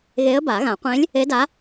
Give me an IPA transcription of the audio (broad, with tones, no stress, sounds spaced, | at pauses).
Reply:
ɣ e˧˥ ə̯ b a˨˩˦ ɣ ã˨˩˦ qʷ ẽ˧˥ lʲ | e˧˥ d a˧˥